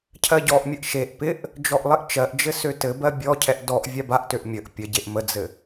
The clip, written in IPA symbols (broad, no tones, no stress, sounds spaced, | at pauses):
cʰ ɜ ɟ ɔ ʔ mʲ ə ʔ ʃ e ʔ p ɪ ʔ | d͡ʒ ɔ ʔ lˠ ɪ ʔ t͡ʃ ɜ ʔ d͡ʒ ɘ s ø t ɘ b ɜ bʲ ɔ cʰ ɛ ʔ d ɔ ʔ vʲ a b a ʔ t ø ʔ mʲ ə ʔ pʲ ə ɟ e ʔ m ə d͡z ɘ